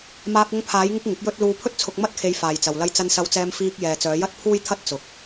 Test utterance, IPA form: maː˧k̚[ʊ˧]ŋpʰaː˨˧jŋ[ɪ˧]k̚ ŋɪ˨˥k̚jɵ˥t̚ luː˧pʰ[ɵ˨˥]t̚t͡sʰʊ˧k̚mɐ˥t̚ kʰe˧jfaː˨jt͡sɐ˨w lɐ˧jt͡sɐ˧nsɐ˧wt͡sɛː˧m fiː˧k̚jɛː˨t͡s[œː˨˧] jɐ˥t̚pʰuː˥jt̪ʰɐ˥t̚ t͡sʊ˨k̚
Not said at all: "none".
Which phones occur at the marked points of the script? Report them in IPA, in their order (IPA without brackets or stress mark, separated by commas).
ʊ˧, ɪ˧, ɵ˥, œː˨˧